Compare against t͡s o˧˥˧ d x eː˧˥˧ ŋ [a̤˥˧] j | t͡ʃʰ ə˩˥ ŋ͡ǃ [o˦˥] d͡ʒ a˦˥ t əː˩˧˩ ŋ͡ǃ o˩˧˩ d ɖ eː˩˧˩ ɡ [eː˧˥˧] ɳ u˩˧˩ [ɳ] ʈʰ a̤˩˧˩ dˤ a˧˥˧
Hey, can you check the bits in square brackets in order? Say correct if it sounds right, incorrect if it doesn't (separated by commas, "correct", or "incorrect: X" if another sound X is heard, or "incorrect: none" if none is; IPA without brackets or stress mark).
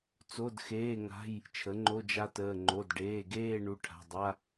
incorrect: a̤˧˥˧, incorrect: o˧˥˧, incorrect: eː˥˧, incorrect: none